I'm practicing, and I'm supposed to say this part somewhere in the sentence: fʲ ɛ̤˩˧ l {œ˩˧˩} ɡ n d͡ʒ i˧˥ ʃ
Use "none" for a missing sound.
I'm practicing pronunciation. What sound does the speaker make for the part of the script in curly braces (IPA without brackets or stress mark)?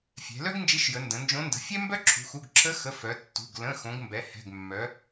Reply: œ˥